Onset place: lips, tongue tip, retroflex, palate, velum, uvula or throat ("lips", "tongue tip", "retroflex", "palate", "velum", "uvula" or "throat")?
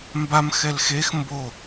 lips